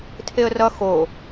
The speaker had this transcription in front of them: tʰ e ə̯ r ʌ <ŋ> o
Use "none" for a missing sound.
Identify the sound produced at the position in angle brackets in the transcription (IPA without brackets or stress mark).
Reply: x